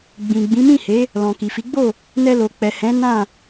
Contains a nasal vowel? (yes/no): yes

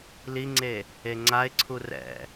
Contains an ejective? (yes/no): no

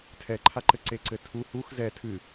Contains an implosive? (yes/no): no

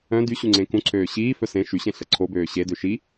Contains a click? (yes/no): yes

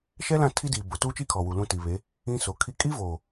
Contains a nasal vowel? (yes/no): yes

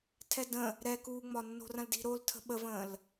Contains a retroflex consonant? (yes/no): no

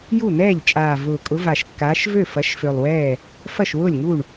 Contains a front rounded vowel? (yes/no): yes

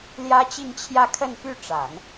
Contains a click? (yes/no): no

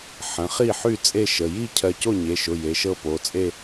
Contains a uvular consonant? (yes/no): yes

